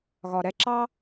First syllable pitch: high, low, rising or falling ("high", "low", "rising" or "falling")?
low